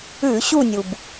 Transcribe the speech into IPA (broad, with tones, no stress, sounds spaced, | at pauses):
ʉ˧˩˧ ɕ u˦˨ nʲ u˩ b